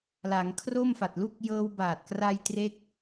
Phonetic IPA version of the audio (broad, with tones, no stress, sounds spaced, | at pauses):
l a˩˦ ŋ kʰ r o˥˩ m f a˨˩ t̚ l u˥˩ k̚ j ɤː˧ w b aː˨˩ t̚ k r a˧ j t r e˥˩ k̚